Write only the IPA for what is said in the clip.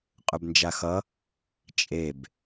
qʼ ɵ b n d͡ʒ a x ʌ | t͡ʃʼ e b

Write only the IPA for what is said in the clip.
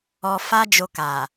ɔ˧ f a˦ d͡ʒ o˧ k a˨

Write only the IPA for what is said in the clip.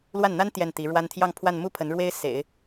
l w a˥˩ n n̪ a˥ n t̪ j ɛ˥˩ n t̪ i˧˥ ɻ w a˥ n t̪ʰ j ɑ˥˧ ŋ pʰ w a˥˧ n m u˥˩ pʰ ə˧˥ n ɻ w e˥ ɪ̯ s ḛ˨˩˦ ɪ̯

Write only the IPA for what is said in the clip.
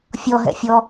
fʲ ɔ ɦ ɛ̰ fʲ ɔ

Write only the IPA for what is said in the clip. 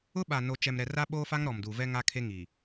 ʊ˦ ɓ a˨ n o˨ t͡ʃ ɛ˨ m ɾ ɛ˨ r a˦ ɓ oː˦ f a˦ ŋ ɾ ɔ˨ m d uː˨ v ɛ˦ ŋ a˦ kʰ e˦ ŋ i˨

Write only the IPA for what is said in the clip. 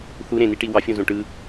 θ u ɾ ẽ n i ʈ i w ɑ fʲ õ z õ ʈ ɯ

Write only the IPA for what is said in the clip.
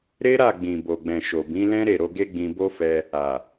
ɾ e˦ ɾ a˦˨ ɡ͡b ĩ˨ b o˨ ɡ͡b ɛ̃˨ ʃ o˨ b ĩ˨˦ l ɛ̃˦ ɾ e˦˨ ɾ o˧ ɡ e˦ ɡ͡b ĩ˧ b o˦ f ɛ˧ | a˨

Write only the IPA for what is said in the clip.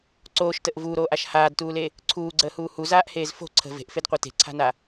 ǀ oː ʃ t ə ʔ v uː ɾ oː ʔ a ʃ h aː d t uː l e | ǀʰ uː ɡ͡ǀ əː h uː h u z aː ʔ h eː z f o̤ ǀʰ ə̤ v e̤ ʔ f e d qʷ a t e̤ ǀʰ a̤ n a

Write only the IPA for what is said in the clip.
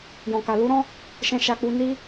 j ɔ̃˧ k a˧ l u˦ ɾ ɔ̃˦ | ʃ ɛ̃˦ ʃ a˦ k͡p u˦ n i˦

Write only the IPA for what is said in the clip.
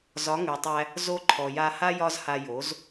z ɒ˨˦ ŋ ʉ˨ tˤ æ˧ | z o˧ ǃʰ ɔ˨ j a˧ h a˦ j ɒ˦ z h a˧ j o˨˦ z

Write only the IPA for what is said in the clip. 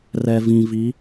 r ɛ˨ v ĩ˨ v i˨˦

